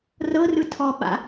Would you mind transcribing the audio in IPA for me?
r ɤ r ɯ tʰ ɔ ɓ a̰

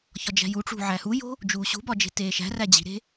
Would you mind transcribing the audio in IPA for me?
ç ɒ d͡ʒ æ̤ j u ʈ͡ʂ ṳ ʕ æ h u j o̤ | d͡ʒ uː ɕ ṳ b ɒ d͡ʒ e̤ t eː ʃ æ̤ r æ d͡ʑ i̤ ɾ e̤

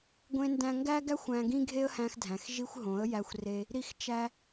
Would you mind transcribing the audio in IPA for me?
ɡʷ ẽ˧ n d æ̃˧ ŋ ɡ æ˦ ɡ æ˦ xʷ æ̃˧ ɡ ĩ˦ ɡʱ e˦ ə̯ h æ̃˧ x dʱ æ̃˨ x ʒ i˧ xʷ ɦ õ˨˦ ə̯ j æ˧ xʷ r e˧ | ɾ i˦ x t͡ʃ æ˦

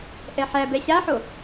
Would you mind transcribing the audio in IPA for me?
ʔ ɛ ħ æ b ɛ ɕ a ħ o

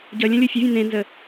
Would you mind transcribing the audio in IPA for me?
ɟ ʌ lʲ ə̃ lʲ o fʲ ʌ vʲ ẽ n̪ ẽ n z ə

